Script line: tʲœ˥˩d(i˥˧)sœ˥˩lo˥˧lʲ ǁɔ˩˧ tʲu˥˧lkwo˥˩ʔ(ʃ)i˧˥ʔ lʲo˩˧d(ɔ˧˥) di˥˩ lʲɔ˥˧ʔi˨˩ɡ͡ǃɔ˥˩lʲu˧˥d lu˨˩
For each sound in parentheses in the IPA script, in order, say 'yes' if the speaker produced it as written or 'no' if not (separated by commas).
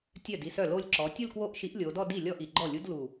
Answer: yes, yes, no